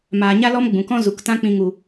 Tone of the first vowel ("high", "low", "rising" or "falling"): low